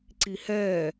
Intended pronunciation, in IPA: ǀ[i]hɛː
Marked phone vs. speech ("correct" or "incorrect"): correct